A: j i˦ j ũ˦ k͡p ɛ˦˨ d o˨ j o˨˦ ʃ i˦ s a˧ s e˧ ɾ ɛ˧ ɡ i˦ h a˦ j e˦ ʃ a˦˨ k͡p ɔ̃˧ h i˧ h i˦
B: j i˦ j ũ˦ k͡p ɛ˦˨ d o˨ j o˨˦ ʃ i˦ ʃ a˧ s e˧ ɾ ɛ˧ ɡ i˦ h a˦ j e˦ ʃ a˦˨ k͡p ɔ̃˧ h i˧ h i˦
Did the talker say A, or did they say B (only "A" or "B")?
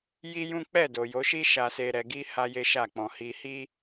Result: B